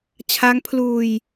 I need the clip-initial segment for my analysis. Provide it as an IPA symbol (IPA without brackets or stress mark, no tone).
t͡ɕʰ